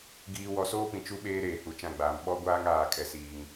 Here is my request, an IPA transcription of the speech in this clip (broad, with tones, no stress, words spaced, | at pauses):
ɡiː˨ wɔ˨soː˦pĩ˨ t͡ʃu˦ɓeː˦ ɾeː˨hu˨t͡ʃã˦˨ɡ͡baː˨m ɓɔ˦ɡʷaː˦ŋaː˨kʼɛ˨ siː˨ŋ